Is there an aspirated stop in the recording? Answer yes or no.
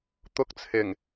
yes